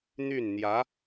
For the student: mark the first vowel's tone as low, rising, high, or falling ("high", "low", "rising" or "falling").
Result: falling